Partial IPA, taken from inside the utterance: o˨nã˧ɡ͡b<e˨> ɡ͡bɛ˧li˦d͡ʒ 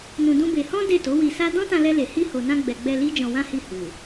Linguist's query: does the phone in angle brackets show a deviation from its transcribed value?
yes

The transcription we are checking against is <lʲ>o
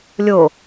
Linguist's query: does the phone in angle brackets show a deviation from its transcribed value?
no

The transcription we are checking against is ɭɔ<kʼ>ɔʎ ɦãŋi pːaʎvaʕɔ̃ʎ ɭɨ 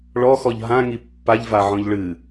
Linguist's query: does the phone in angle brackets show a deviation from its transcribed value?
yes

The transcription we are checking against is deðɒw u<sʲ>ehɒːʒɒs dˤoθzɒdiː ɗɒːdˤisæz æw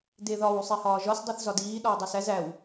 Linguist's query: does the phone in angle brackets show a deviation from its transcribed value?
yes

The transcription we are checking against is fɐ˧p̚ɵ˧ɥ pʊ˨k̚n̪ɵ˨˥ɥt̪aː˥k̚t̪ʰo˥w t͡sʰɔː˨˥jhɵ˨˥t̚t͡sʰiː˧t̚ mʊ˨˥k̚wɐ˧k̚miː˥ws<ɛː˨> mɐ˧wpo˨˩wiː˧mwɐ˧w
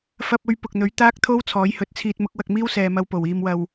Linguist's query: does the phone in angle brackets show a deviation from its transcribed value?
no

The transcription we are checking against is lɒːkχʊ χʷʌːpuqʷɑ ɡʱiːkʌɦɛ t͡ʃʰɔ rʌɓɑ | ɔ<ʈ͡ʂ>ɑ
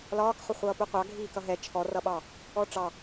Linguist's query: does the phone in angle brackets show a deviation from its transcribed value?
no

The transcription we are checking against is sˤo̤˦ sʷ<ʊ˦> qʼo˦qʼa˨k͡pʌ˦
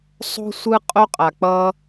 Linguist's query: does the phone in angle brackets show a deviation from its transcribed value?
yes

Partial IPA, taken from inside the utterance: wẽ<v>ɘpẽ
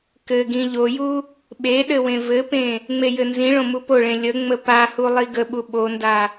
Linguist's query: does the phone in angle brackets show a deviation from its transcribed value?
no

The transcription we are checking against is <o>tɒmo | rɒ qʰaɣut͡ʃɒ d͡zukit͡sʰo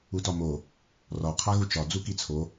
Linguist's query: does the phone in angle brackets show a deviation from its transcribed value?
yes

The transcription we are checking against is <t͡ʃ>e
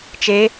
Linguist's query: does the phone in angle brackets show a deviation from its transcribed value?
no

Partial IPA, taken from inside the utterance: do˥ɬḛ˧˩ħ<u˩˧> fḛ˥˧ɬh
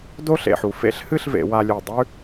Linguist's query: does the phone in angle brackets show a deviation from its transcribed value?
no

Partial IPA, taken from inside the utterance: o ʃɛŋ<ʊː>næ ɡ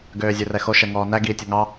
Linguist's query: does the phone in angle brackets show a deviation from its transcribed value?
yes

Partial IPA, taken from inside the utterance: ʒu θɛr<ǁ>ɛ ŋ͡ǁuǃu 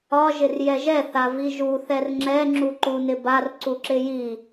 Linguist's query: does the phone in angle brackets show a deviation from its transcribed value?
yes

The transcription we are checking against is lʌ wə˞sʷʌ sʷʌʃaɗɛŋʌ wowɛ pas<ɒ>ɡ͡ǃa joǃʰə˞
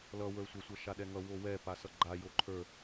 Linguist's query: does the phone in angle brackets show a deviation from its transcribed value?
yes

